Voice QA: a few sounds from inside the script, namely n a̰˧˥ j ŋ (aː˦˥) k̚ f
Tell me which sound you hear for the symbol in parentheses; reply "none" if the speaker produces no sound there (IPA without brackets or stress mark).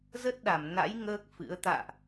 əː˦˥